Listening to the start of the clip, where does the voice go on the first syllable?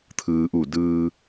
low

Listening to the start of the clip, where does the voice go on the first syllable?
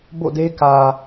falling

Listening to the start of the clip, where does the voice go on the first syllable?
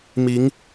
rising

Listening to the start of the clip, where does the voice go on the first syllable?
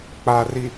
low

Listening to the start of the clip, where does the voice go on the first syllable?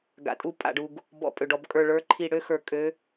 low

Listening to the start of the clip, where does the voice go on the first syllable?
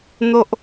high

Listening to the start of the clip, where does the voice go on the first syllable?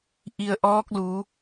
low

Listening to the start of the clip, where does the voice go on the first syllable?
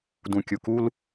low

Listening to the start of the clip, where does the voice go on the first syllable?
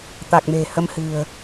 low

